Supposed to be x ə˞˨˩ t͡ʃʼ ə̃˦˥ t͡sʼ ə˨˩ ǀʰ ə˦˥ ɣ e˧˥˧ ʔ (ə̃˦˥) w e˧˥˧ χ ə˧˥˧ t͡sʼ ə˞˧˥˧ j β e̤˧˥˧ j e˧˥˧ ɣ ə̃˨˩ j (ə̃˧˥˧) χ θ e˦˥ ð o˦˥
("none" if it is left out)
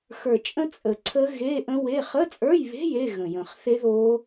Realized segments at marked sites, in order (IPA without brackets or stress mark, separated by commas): ə̃˦˥, ə̃˨˩